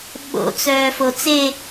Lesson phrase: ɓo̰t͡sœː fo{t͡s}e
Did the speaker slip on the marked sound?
no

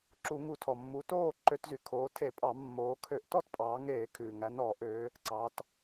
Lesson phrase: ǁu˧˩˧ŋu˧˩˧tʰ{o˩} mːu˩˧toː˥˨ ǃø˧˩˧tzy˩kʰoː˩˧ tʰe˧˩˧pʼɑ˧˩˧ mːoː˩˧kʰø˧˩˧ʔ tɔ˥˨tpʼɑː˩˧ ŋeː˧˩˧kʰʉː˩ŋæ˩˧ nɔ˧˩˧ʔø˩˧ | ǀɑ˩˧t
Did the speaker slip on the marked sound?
yes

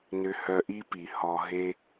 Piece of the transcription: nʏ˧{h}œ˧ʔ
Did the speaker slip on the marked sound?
no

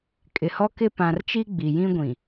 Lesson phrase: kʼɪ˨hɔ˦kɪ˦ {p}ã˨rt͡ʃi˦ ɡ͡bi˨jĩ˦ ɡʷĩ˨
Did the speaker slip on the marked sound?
no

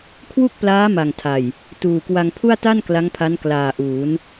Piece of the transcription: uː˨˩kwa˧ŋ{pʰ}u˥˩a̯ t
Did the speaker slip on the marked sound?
no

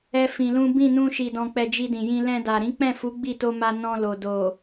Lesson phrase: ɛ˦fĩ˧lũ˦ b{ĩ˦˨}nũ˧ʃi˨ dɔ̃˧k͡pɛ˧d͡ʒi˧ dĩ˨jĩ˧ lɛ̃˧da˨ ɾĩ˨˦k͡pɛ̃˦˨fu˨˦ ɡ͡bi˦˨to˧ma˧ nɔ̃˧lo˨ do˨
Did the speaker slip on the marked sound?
no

